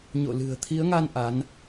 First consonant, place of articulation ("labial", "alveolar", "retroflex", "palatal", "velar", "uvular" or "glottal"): palatal